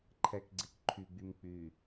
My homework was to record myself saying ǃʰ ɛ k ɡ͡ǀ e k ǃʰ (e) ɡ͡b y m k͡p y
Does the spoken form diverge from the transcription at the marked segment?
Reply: yes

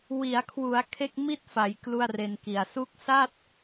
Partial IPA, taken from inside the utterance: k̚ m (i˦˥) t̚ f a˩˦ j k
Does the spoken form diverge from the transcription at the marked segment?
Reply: yes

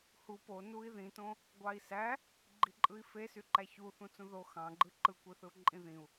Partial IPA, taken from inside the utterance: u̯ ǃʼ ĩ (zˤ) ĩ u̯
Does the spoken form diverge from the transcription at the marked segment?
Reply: yes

